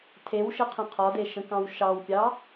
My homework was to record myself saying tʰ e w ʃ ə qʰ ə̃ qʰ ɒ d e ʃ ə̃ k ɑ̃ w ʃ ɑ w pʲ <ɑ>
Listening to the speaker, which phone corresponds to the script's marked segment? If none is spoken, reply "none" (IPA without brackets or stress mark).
ɑ